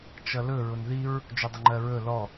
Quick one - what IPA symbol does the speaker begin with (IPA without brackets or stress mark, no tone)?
t͡ʃ